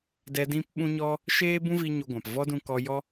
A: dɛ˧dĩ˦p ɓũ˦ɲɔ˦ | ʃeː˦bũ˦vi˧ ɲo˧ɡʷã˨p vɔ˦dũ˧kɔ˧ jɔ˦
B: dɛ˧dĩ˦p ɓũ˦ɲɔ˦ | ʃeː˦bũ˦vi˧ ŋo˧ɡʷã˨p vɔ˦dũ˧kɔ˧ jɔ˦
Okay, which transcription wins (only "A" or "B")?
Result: A